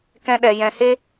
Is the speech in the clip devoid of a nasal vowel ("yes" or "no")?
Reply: no